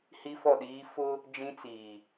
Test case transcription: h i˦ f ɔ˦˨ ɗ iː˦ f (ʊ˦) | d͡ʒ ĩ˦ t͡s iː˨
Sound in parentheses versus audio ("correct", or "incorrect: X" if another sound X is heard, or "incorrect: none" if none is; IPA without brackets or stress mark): correct